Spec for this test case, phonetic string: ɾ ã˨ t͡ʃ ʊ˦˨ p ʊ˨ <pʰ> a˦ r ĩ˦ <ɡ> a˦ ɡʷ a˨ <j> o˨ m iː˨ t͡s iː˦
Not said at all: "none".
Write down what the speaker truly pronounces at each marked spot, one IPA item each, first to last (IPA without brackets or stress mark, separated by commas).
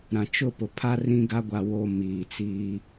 pʰ, ɡ, w